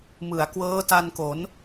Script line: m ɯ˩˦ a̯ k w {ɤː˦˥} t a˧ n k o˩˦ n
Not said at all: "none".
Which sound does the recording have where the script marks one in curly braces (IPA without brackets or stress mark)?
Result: ɤː˦˥